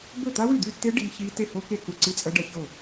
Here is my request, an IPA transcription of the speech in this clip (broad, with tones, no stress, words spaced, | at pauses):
bɵ˥˩ t̪a˦˥wʉ˥˩d̪ʉ˥˩tːe˦˥ ɖi˦˥çi˦˥ te˥˩ho˦˥ke˥˩ ku˥˩ ǀɨ˥˩t͡sʼɐ˦˥ɖɐ˥˩ ço˥˩